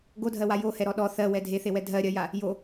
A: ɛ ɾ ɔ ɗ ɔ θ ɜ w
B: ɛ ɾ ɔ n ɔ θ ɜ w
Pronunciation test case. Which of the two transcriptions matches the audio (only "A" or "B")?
A